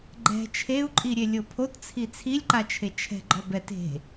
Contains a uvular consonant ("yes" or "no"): no